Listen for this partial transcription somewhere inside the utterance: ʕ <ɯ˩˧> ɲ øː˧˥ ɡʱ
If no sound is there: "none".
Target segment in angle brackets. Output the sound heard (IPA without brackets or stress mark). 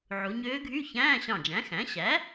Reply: u˩˧